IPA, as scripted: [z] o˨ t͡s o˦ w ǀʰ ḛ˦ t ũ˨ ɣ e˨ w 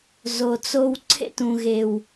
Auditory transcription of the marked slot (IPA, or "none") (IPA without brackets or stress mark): z